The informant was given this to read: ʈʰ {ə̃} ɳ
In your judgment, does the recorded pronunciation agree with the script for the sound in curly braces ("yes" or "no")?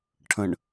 yes